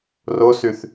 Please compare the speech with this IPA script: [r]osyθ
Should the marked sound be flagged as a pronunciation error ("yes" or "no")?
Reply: no